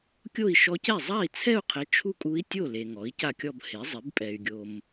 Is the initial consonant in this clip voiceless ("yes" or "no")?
yes